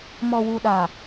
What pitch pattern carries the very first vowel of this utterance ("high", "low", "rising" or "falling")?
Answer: low